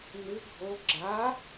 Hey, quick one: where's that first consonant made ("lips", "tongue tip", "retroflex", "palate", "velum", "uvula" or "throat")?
tongue tip